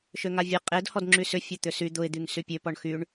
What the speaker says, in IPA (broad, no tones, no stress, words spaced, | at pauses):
ʃøŋavʲe qʼedhɔd ŋ͡ǁysʏ fʲɐt̪ʏsy d̪ʊɪ̯d̪yŋ sypʲø pɔɳxyɳ